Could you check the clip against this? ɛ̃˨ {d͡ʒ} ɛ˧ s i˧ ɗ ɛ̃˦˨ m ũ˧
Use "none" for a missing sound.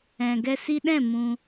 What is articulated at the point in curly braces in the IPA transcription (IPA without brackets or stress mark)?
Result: ɡ